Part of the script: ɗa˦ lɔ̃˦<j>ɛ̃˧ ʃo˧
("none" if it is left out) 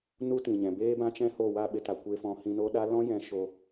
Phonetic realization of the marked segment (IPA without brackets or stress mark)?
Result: j